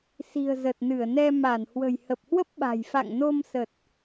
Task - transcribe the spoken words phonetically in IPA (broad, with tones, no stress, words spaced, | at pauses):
si̤˨˩ə̯zə˨˩t̚nɨ˧˩ə̯nɛ˧ ma˧˩nhwə̤˨˩j hə˨˩p̚hwə˦˥p̚ɓa̤˨˩jfa̰˧˨ŋ no˧msə˨˩t̚